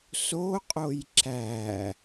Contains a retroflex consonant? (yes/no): no